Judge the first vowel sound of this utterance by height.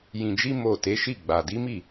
high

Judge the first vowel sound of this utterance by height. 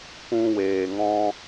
high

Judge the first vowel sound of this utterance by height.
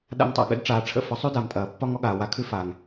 low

